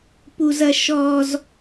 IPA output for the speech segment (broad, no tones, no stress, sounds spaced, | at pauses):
p u z ɐ ʃ ɔ z